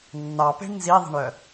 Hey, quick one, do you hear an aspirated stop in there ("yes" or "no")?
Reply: no